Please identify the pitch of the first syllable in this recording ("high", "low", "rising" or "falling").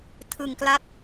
low